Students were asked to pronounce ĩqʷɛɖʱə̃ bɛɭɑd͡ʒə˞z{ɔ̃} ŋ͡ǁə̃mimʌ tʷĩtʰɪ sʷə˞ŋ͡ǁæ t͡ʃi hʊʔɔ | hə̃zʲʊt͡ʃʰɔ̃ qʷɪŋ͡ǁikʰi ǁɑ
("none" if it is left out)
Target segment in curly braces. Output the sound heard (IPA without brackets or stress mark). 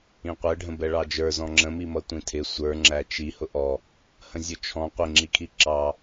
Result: ɔ̃